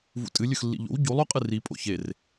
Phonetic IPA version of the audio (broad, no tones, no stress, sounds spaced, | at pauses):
v ṵ tʼ ɨ lʲ ɵ x lː ḭ ʎ o̰ w ɟ u lˠ o qʼ ɨ r i pʼ o̰ ç e r